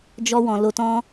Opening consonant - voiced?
yes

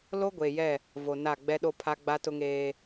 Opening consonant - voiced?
yes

